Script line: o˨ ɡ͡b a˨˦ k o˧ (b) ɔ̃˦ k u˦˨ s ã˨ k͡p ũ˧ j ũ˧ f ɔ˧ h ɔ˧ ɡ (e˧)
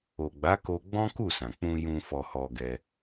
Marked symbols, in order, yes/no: no, no

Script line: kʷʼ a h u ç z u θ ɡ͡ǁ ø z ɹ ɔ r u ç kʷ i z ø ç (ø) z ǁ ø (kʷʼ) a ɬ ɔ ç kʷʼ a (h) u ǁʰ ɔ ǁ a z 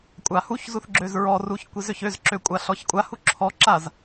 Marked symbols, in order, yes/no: yes, yes, yes

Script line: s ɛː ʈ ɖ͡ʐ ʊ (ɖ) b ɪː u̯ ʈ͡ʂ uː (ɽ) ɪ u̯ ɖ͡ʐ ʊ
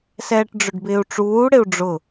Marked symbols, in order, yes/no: yes, yes

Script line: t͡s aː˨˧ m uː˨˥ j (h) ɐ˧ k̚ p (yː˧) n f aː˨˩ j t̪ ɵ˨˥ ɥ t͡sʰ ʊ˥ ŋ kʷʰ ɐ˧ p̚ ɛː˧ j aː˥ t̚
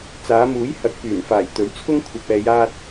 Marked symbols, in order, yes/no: yes, no

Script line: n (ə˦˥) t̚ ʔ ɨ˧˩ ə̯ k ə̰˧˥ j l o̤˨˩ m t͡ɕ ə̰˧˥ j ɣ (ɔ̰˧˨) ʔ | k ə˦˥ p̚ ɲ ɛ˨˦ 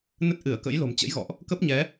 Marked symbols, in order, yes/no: yes, yes

